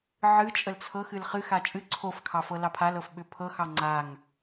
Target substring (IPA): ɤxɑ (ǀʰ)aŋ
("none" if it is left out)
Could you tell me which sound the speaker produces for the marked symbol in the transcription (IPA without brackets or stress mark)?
ŋ͡ǀ